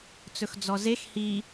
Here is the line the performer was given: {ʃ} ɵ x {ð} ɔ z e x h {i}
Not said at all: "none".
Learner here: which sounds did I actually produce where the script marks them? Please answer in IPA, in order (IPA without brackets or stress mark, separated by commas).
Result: t͡s, d͡z, i